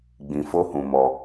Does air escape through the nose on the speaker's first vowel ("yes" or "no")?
yes